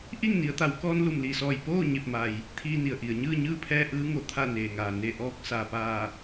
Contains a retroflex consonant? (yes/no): no